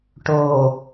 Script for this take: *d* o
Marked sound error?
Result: yes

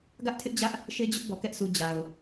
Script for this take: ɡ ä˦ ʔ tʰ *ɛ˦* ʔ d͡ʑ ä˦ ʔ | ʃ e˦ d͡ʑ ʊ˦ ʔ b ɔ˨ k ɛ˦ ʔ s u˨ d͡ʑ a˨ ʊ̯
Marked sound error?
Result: yes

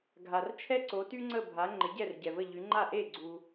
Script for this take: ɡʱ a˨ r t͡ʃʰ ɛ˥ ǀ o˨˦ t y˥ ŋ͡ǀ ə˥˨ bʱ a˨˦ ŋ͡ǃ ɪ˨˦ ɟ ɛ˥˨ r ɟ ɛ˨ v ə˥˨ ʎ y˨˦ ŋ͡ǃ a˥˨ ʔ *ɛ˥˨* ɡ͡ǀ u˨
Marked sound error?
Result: yes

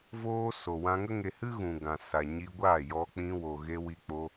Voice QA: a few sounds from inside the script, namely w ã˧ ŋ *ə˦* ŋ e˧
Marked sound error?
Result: no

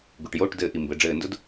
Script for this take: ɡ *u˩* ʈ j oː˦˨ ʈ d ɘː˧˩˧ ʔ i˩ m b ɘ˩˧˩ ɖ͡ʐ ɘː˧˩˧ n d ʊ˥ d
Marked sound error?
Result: no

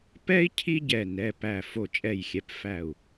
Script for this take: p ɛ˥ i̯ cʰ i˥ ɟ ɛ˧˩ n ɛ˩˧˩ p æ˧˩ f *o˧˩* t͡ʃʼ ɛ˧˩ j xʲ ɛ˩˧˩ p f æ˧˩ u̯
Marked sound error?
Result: no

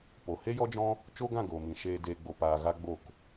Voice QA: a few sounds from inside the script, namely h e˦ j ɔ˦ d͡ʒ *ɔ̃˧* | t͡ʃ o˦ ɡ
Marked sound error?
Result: yes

